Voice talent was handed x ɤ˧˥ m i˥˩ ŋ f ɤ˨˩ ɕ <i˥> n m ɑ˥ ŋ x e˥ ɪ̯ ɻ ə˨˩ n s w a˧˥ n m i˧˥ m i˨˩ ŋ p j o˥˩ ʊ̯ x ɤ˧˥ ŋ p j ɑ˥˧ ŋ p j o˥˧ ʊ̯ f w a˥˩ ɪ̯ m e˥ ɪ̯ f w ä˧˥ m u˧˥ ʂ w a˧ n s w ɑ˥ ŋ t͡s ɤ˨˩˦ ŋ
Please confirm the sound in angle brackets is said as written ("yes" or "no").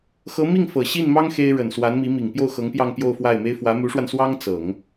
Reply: no